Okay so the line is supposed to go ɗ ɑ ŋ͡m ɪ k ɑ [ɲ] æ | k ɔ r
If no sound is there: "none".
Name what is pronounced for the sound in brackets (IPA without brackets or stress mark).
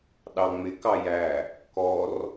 j